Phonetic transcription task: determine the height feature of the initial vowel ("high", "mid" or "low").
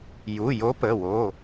high